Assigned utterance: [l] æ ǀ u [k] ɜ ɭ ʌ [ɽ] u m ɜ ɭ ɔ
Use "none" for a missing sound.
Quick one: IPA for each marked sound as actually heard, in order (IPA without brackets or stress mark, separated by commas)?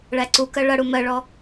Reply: ɭ, k, ɽ